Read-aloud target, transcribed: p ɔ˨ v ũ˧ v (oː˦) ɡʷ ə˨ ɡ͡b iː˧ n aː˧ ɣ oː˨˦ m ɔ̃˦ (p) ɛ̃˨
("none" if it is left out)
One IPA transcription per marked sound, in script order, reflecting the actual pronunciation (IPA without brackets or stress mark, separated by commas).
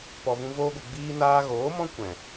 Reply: oː˧, kʷ